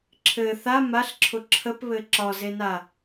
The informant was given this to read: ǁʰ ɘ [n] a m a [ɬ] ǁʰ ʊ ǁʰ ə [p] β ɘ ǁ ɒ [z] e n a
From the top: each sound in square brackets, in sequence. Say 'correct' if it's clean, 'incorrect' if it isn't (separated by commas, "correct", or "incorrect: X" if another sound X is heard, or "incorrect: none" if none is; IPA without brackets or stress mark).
incorrect: θ, correct, correct, correct